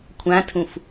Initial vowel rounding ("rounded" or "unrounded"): unrounded